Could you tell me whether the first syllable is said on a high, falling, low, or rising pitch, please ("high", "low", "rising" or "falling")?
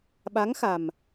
rising